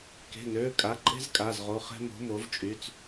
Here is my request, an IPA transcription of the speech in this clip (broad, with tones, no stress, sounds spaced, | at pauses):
k e̤˩˧˩ n øː˩˧˩ kʼ a˩˧˩ ǃʼ e̤˦ z kʼ a˩˧˩ z ʁ o˩˧˩ χ ɛ̤˦ m o̤˨˥ m o˨˥ v t͡ʃʼ y˩˧˩ t͡s